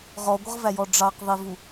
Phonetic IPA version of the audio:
ʁ ɔ ɡʷ ə ʁ v æ j ɔ ɖ͡ʐ ɑ q ðˤ i v u

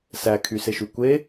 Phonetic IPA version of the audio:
s æ kʰ y s e ʃ y kʷ e

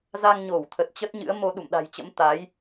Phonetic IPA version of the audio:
z a˧ ŋ ɲ o˧˩ w t̪ʰ ə˨˩ t̚ t͡ɕ ə˦˥ t̚ ɲ ɨ̰˧˥ ə̯ m o˧ ɗ ṵ˧˨ m ɗ a̤˨˩ j t͡ɕ ə̰˧˥ m t̪ a˨˦ j

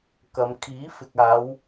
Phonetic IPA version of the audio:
k ɐ˨˧ m kʰ iː˨˥ f ɪ˨ k̚ aː˨˧ w

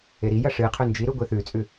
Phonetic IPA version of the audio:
e ɾ i j ɐ ʂ ɨ qʰ ɵ n d͡ʒ i ɾ u ɡʷ e θ ʉ t͡sʼ ʉ

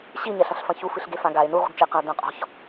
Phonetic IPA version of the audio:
ɕ i ɲ ɛ ɬ ɐ̃ ɬ f ɐ̃ ç u f ɨ ɬ ɡ e f ã ɡ a ɪ̯ n u ʁ ṳ ɡ t͡ʃ e q ɐ̃ ʊ̯ d̪ ã qʼ ɔ̤ ç

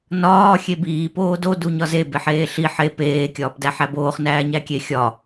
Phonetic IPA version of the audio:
n ɒː xʲ e b iː p oː d o d u ɲ ɒ z e b e ħ eː ɬ i ħ e p eː kʲ ɒː p d æ ħ æ b oː χ n æː ɲ æ kʲ e xʲ ɒ

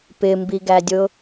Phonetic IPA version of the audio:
p ɪ m b i ɡ æ dʲ ʊ

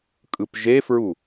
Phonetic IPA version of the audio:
kʼ ɯ p ʒ e f ɹ u

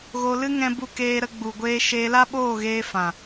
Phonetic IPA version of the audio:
ɣ o˧ l ɨ˦ ŋ ɛ̃˧ b u˧ k eː˧ ɾ ə˧ ɡ͡b u˨ ɡʷ eː˧ ʃ eː˧ l a˦ ɓ oː˦˨ ɣ eː˧ f ã˨

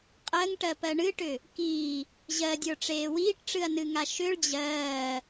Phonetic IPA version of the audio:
qʼ ɜ ŋ ʈ ɜ p ɜ ɳ ɨ ʈ ʏ | k iː | ʑ ɜ dʲ ə˞ ʈ͡ʂ eː w iː ʈ ʈ͡ʂ ɨ ɐ̯ n ɨ ŋ a ʃ ʏ ɭ d͡ʑ ɜː

